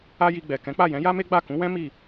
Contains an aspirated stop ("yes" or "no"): no